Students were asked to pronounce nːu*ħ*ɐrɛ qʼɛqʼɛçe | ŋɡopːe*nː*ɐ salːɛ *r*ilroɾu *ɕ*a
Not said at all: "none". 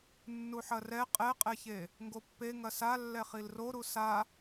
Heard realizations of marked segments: ħ, ŋ, χ, s

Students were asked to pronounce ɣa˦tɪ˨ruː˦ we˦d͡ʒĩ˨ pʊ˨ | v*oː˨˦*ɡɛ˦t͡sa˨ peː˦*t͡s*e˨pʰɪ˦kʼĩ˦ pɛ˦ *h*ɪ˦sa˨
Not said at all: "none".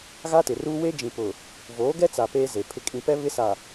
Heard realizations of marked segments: oː˨˦, z, β

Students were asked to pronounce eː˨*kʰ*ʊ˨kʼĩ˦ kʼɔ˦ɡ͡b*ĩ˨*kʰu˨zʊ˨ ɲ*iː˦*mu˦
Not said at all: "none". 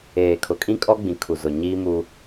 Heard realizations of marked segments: kʰ, ĩ˨, iː˦

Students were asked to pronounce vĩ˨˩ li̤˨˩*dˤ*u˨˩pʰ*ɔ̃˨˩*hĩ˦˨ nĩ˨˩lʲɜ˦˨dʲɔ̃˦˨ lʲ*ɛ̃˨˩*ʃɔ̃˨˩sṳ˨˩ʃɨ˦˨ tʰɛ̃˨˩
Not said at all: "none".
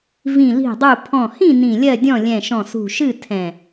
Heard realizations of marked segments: dˤ, ɔ̃˨˩, ɛ̃˨˩

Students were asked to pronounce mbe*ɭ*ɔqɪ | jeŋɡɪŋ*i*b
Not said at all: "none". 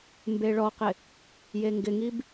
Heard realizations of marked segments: ɭ, i

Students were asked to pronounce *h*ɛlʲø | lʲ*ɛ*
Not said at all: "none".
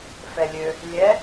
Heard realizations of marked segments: f, ɛ

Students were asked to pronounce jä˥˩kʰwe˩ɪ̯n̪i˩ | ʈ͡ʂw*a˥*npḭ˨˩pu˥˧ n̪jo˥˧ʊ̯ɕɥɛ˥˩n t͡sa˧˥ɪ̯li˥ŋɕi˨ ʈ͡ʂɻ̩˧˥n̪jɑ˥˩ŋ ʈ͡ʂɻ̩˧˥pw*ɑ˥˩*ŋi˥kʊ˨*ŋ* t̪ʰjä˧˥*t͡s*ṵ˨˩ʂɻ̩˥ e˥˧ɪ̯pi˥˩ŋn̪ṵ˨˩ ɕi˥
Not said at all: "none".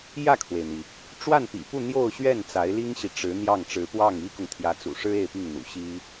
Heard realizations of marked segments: a˥˩, ɑ˥˩, ŋ, t͡s

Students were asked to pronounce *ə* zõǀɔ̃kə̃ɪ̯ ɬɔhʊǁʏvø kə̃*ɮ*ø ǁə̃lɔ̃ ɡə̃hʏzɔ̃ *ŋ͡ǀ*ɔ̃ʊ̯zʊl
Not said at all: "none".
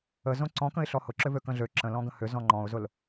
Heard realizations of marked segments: ə, ɮ, ŋ͡ǃ

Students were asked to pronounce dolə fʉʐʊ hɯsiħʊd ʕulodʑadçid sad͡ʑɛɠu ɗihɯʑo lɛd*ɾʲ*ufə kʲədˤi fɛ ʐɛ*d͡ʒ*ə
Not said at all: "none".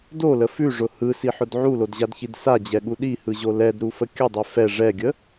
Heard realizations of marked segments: ɾ, ɡʲ

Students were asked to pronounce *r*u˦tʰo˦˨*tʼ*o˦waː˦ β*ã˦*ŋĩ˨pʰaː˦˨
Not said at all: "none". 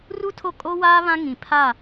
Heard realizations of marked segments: r, kʼ, ã˦

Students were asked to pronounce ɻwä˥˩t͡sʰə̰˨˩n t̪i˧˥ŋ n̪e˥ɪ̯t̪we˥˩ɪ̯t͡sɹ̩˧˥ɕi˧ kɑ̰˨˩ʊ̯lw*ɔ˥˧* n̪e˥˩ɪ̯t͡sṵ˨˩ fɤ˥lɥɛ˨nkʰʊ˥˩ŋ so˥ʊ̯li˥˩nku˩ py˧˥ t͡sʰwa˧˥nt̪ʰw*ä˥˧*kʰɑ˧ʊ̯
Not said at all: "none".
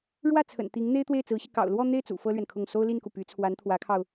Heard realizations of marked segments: ɔ˥˧, ä˧˥

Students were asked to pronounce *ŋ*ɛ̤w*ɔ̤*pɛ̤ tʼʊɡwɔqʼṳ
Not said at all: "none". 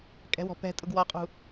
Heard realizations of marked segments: kʼ, ɔ̤

